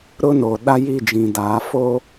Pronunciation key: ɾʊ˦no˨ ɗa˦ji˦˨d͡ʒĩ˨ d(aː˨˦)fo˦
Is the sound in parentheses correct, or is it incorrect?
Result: correct